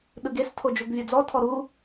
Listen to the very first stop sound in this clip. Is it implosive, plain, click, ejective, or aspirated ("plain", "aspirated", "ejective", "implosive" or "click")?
implosive